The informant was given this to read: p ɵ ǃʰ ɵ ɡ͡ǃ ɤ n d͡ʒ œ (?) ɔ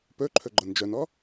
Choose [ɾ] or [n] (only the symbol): n